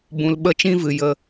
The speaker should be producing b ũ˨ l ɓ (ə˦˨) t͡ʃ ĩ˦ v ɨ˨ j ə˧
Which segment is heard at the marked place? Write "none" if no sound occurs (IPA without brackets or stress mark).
ə˦˨